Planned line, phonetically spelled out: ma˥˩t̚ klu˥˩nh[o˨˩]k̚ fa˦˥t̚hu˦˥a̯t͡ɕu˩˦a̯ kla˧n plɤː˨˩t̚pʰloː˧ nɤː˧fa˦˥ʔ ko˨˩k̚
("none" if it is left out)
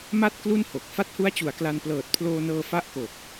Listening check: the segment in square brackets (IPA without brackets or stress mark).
o˨˩